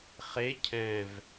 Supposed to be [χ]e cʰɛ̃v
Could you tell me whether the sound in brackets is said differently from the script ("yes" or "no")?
no